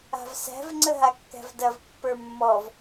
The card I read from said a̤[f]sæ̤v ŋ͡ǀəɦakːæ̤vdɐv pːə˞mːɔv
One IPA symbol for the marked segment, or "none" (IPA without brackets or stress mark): v